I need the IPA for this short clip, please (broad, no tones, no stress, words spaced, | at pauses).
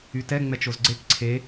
ytɛ ŋ͡mɛt͡ʃozɡ͡ǀek ǀʰe